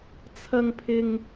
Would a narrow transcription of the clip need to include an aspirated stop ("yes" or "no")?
yes